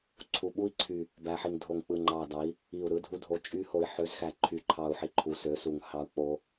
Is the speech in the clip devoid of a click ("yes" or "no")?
no